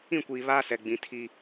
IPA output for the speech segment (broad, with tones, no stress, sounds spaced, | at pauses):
ĩ˦˨ kʷ iː˨ β aː˦ s ɛ˨ ɡ͡b ĩ˨ tʰ i˨